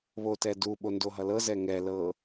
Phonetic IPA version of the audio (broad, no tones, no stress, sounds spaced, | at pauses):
β o t ɛ d u ɓ o n d o ɦ ʌ l ɤ z ɛ ŋ ɛ l ɤ